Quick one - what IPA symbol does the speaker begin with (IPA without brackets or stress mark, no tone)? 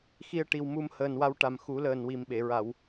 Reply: x